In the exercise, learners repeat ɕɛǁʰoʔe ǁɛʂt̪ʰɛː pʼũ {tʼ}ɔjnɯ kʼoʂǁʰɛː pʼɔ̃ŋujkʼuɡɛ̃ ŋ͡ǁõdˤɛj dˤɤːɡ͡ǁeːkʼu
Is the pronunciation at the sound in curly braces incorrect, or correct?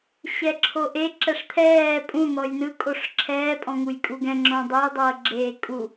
incorrect